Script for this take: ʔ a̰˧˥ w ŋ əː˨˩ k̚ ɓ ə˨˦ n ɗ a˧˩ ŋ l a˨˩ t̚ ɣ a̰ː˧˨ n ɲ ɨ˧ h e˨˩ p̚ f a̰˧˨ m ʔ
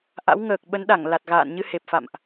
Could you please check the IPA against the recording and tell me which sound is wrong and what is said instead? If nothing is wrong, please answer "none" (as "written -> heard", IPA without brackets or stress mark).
none